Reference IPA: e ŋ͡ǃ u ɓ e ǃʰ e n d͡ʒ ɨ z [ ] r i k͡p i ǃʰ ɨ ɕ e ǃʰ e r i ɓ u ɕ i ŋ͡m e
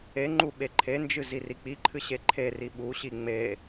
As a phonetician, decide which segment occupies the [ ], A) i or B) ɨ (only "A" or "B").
A